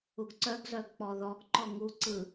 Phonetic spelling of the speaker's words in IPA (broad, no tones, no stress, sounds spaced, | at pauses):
u ɡ ǀ œ ɡ z œ ɡ k͡p ɔ ð ɔ ɡ ǃ ɔ ŋ u ǀ ɯ